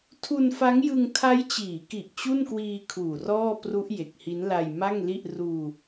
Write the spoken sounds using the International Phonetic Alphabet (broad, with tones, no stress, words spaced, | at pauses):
tʰu˧nfa˦˥ŋjɯ˧ŋ tʰa˦˥jt͡ɕiː˩˦ki˨˩ʔ t͡ɕu˥˩n kwiː˧ kʰuː˨˩rɔː˥˩ pru˦˥ʔ je˨˩k̚hi˦˥nla˧j ma˥˩ŋli˥˩ʔ ruː˧